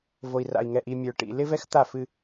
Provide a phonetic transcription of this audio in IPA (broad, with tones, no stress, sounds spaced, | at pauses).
v o˨ i̯ r a̰˨ i̯ ŋ ɛ˨ ʔ i˨ mʲ ə˞˨ ʈ ḭ˨ l ɪ˦ v ɛ˦ x t̪ a˦˨ f ɨ˦